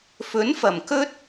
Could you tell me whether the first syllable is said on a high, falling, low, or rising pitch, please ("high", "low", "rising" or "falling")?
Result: rising